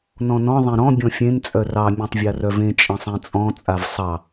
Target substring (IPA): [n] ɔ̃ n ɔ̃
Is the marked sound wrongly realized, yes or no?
no